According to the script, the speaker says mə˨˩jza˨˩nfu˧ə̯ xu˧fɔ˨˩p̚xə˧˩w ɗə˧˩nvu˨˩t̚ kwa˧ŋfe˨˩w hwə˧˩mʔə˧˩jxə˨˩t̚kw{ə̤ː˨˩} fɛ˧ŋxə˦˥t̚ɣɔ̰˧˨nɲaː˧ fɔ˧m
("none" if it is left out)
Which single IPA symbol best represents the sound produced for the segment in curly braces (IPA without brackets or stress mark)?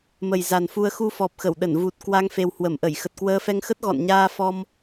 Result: əː˧